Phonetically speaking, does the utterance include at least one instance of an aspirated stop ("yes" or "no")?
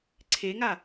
yes